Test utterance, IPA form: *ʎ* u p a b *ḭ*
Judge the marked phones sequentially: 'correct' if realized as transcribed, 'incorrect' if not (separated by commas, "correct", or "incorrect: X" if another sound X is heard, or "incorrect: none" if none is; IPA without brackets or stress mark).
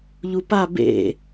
correct, incorrect: ḛ